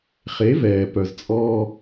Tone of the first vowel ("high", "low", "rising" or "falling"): rising